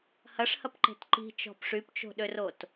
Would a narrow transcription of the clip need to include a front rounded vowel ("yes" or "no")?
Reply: yes